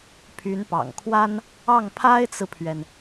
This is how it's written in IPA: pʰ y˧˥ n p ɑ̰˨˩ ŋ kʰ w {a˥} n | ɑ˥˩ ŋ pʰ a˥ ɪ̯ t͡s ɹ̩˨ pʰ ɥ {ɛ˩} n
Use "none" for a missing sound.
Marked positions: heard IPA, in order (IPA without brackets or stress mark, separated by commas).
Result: a˥, ɛ˩